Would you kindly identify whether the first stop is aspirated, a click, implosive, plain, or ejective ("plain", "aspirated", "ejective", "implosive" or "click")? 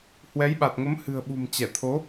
implosive